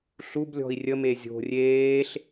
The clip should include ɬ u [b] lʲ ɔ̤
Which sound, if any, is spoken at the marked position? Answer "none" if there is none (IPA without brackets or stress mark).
b